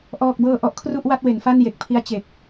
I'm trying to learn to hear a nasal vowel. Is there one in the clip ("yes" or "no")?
no